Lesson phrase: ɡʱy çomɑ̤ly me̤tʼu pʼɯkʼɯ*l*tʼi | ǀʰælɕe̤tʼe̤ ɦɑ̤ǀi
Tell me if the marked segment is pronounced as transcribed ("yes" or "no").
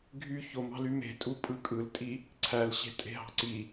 yes